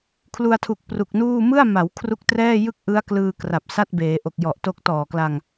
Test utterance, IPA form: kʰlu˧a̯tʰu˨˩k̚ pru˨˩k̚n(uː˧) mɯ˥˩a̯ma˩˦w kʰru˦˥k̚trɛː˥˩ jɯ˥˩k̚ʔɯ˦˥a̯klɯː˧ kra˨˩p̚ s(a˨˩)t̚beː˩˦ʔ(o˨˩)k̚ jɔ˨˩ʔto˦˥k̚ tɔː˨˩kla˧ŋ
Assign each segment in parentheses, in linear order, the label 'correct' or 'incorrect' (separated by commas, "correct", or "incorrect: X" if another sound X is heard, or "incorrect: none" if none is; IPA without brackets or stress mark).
incorrect: uː˥˩, incorrect: a˥˩, correct